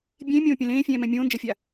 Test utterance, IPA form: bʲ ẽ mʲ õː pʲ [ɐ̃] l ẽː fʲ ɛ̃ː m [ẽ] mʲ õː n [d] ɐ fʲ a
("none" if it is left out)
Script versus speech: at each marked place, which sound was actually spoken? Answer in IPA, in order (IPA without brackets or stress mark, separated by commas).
ɐ̃, ɛ̃, d͡ʒ